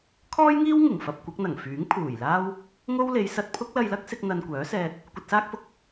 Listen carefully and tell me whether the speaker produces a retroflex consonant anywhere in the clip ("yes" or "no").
no